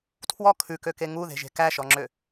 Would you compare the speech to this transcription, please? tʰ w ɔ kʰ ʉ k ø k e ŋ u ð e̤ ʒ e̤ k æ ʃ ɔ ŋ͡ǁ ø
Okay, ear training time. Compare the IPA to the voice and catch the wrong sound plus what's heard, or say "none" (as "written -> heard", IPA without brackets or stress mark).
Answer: none